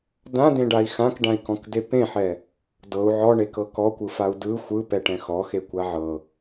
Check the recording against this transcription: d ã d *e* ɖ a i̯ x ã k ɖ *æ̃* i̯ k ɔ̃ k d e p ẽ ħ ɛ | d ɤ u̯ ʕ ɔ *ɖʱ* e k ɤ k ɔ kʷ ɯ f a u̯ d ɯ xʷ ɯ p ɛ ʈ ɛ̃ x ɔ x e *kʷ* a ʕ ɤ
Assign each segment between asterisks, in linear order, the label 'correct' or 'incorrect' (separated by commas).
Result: incorrect, incorrect, incorrect, correct